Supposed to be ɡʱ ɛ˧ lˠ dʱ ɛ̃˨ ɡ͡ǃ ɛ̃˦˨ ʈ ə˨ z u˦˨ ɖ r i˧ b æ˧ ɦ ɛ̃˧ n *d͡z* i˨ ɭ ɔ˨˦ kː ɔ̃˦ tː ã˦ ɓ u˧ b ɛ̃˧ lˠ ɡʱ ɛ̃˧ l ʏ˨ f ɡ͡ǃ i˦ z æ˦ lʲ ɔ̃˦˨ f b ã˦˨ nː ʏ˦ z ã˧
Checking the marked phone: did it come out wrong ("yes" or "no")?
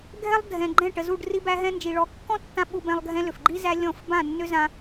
yes